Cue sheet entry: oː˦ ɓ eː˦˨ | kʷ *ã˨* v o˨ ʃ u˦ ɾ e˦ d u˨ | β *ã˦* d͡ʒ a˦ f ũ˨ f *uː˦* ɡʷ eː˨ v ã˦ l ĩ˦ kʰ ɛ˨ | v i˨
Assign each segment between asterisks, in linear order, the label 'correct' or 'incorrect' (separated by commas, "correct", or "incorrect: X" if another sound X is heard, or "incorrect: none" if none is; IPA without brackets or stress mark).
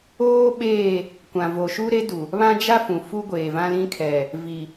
correct, correct, incorrect: u˦